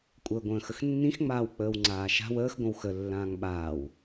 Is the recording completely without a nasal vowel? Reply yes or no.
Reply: no